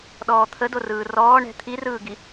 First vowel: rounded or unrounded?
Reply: rounded